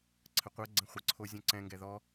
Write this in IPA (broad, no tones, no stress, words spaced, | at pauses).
ǀʰəqʷɜɡ͡ǀɛ̃ χʷə ǀʰozʲɔ̃ǀɛ̃ ŋɡɛðɔ